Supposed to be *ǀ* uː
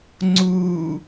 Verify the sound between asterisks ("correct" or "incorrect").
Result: incorrect